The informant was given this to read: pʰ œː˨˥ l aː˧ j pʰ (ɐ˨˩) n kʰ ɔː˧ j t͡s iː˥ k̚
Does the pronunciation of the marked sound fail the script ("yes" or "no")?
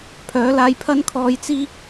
yes